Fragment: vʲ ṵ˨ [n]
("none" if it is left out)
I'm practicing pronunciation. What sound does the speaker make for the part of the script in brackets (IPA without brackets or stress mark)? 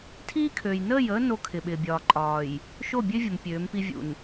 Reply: n